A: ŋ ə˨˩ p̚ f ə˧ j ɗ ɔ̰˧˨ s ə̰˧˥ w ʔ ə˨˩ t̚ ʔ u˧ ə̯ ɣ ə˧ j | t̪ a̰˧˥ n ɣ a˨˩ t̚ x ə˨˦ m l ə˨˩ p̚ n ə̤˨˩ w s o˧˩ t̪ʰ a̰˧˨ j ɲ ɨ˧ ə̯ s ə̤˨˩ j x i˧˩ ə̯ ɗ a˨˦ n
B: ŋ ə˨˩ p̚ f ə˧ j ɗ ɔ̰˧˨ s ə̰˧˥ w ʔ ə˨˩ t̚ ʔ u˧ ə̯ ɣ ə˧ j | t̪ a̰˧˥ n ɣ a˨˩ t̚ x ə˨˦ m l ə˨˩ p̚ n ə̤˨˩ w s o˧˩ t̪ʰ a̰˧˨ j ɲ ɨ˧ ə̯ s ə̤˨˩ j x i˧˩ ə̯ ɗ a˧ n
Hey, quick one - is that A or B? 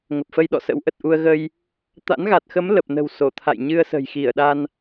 B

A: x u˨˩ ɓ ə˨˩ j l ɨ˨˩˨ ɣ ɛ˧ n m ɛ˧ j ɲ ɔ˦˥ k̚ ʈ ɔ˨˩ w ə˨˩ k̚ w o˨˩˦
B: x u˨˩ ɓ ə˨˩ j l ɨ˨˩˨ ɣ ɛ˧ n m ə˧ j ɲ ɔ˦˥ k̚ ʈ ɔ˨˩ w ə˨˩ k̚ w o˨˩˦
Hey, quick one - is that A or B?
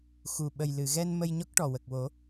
B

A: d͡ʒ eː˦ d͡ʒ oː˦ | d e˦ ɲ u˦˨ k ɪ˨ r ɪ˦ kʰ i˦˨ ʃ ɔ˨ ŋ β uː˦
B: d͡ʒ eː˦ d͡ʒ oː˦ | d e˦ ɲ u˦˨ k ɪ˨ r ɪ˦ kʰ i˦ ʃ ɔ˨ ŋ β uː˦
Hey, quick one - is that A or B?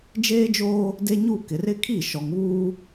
A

